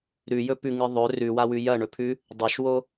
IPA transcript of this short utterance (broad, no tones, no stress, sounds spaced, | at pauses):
ɾ ʉ j ɵ p ʉ ŋ ɨ ðˤ ɵ r ʉ w a w ʉ j ɐ ɳ ɵ pʰ ʉ | dˤ ɵ ʃ w o